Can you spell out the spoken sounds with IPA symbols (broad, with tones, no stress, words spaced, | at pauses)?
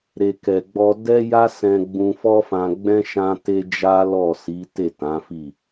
ɾe˨kɛ˨ɡ͡bɔ˧ dɛ˦ja˦ sɛ̃˧ ɡ͡bũ˧fɔ˦fã˧ɡ͡bɛ̃˦ ʃã˦te˦ d͡ʒa˦lɔ˦˨ si˨˦te˦˨ tã˨˦fi˦˨